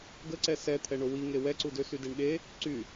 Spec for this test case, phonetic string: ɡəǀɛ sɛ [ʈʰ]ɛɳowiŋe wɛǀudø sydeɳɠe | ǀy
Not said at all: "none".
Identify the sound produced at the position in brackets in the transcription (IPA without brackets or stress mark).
t̪ʰ